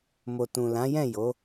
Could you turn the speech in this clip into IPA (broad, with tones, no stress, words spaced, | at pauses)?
mo˨tũ˨lã˨˦jɛ̃˦˨ jo˨˦